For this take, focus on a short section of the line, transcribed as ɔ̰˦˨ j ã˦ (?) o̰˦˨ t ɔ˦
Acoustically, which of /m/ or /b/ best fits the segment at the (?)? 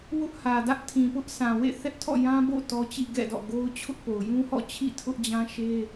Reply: b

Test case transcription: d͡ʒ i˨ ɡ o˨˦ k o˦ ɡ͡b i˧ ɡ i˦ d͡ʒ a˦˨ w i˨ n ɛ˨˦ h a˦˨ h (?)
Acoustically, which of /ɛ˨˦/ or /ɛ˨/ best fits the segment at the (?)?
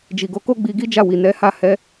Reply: ɛ˨˦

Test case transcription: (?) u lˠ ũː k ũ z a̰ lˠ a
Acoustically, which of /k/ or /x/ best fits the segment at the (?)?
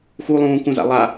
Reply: x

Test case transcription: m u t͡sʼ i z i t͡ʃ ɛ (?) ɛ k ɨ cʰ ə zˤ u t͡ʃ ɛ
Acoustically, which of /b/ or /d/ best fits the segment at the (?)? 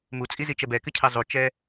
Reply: b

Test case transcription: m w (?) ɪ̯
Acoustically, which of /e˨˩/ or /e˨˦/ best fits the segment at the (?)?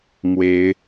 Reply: e˨˦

